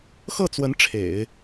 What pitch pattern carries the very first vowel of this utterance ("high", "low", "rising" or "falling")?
falling